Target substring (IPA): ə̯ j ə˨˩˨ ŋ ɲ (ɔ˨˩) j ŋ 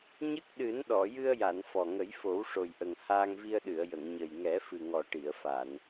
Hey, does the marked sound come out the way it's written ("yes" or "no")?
no